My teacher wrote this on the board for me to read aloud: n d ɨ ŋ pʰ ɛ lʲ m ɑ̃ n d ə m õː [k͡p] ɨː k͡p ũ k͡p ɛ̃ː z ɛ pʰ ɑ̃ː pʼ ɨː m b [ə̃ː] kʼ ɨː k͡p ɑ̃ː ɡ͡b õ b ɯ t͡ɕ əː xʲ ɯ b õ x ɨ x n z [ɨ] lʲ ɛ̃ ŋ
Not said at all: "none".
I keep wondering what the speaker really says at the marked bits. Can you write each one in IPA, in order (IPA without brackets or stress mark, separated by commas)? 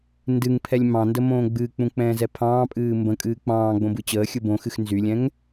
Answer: ɡ͡b, ə̃, y